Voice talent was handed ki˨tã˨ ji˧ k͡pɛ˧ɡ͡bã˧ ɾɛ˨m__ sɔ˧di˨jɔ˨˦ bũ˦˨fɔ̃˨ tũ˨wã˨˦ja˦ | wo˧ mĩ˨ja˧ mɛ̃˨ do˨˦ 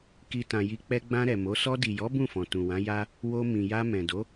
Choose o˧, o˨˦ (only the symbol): o˨˦